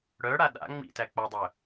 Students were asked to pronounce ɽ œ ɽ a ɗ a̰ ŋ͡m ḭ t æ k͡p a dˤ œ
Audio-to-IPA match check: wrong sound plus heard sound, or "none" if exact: none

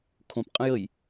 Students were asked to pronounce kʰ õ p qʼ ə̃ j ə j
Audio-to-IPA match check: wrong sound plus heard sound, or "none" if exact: none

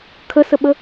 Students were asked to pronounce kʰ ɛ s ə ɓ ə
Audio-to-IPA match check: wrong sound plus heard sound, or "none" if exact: ɛ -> ə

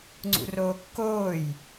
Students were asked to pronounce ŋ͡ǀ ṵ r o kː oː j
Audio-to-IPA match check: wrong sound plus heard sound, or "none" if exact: o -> oː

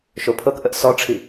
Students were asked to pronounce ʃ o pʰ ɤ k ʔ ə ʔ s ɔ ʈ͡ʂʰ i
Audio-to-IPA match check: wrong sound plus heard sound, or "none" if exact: none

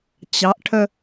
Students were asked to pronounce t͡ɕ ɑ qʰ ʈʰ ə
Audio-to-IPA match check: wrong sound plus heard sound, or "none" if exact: qʰ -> ʔ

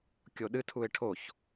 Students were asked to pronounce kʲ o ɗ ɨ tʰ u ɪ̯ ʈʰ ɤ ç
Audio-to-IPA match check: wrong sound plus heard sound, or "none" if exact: ɤ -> o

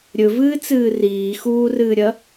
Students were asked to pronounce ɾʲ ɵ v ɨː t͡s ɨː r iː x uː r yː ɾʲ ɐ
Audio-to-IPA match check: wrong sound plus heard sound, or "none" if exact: yː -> ɨː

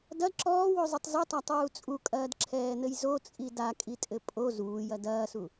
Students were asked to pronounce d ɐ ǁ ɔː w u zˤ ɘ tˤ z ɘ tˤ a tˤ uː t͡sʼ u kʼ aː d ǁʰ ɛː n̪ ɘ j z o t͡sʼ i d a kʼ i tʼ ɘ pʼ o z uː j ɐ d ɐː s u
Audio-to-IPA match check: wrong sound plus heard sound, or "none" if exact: aː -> ɐː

